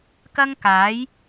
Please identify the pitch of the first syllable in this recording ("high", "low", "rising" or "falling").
high